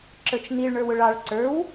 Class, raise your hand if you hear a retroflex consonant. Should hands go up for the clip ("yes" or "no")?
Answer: yes